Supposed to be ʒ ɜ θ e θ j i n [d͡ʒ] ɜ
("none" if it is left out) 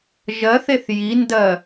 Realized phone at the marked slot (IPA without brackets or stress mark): d